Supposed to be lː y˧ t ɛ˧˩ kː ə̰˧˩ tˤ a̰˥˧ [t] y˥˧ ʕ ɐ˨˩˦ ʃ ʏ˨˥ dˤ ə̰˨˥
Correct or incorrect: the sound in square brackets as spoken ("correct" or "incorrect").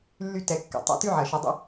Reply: correct